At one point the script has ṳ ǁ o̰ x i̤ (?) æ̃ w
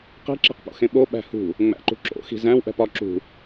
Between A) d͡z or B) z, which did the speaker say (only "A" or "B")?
B